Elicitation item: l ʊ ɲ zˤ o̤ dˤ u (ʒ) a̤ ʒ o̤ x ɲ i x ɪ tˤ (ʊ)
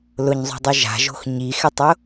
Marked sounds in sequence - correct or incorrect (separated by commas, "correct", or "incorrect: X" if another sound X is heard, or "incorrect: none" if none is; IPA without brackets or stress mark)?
correct, correct